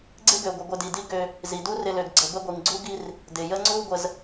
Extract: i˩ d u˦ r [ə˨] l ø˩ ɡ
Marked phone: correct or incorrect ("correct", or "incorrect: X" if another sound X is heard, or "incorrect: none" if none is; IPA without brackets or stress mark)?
incorrect: ɪ˨